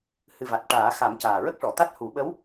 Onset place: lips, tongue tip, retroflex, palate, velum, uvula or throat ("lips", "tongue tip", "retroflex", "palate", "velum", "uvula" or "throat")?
throat